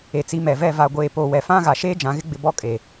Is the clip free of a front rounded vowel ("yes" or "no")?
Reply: yes